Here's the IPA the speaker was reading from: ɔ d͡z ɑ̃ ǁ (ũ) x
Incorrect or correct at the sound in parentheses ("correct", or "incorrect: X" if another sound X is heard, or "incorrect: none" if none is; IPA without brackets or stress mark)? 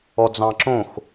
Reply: incorrect: õ